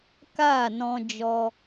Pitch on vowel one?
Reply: falling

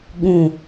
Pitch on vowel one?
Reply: low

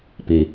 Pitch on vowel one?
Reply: low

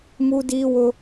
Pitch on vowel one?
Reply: high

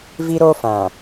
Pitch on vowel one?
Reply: high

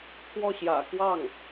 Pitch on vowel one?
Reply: falling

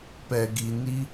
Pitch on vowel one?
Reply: low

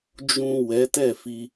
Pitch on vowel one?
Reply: low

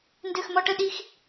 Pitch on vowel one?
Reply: falling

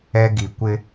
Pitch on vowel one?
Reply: high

